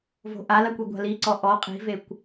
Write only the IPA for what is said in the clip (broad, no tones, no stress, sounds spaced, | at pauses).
v o̤ ʔ a l a kʷ i ɡʷ a̤ l i ǀ ɔ ʔ ɔ qʼ i̤ v e kʷ